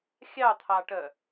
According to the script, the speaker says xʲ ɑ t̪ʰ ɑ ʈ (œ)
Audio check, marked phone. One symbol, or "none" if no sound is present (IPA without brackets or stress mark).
œ